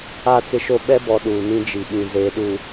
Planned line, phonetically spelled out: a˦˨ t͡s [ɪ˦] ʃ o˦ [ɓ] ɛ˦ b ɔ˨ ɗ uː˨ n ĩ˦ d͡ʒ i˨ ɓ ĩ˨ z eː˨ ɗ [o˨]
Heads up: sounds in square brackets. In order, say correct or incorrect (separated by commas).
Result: correct, correct, incorrect